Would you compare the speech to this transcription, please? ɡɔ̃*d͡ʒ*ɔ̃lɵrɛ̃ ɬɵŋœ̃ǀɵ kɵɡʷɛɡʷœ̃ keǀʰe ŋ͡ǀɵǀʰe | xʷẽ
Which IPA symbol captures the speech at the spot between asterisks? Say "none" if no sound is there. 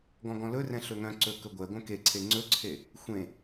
ɡ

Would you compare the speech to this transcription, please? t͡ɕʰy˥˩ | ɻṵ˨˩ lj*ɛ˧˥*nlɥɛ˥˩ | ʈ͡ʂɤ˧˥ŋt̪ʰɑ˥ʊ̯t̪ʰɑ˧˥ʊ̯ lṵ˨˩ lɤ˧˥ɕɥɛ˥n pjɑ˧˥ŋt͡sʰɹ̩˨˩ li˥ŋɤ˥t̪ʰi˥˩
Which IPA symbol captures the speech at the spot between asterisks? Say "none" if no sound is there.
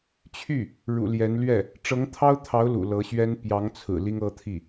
ɛ˧˥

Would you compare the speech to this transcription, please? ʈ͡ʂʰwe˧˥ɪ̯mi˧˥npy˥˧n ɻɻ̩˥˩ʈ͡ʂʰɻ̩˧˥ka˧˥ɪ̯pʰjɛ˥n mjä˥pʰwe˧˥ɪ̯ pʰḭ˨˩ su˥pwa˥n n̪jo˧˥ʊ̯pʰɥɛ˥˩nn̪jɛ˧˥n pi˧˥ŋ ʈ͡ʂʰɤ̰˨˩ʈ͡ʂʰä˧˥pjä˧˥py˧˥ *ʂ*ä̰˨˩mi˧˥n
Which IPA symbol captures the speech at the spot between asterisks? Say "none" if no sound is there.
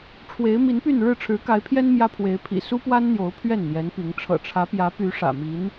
ʂ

